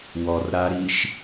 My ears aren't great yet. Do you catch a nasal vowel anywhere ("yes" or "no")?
no